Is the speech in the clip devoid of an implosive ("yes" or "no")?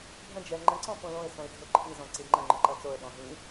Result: no